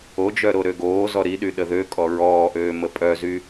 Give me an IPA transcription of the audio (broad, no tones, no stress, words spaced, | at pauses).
od͡ʒœɾo ɾøɡoː zɔɾiɗy ɗəðø kʼɔɹɔːʔøː məpʼœzy